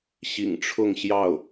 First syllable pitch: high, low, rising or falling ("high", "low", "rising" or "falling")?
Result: low